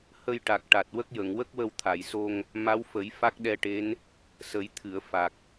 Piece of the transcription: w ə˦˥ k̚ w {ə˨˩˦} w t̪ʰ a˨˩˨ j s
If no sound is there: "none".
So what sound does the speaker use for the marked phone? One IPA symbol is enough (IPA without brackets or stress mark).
ə˧